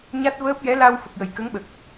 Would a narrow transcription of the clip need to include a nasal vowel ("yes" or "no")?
no